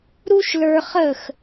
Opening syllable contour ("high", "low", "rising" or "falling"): high